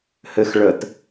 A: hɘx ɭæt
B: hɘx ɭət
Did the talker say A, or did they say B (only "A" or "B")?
B